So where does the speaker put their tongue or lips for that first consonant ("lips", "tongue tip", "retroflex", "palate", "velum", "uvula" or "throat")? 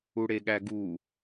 retroflex